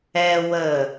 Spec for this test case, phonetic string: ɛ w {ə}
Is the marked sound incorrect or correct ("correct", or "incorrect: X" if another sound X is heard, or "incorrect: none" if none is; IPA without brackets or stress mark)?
correct